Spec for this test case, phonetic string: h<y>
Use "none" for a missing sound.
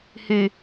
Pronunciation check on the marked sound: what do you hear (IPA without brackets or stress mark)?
y